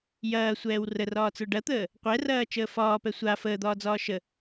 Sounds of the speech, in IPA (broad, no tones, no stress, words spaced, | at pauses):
jɐːsʷɛːw rərɒːt͡sə˞ ɖɐt̪əː | qʷɛrɐː t͡ʃəːfɒːpɛ sʷa fəːd̪ɒːd͡zɒː ʃə